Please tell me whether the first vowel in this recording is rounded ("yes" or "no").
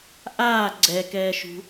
no